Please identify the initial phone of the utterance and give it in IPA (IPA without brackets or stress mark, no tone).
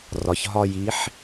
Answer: r